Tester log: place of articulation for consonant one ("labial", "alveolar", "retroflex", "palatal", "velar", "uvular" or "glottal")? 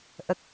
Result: glottal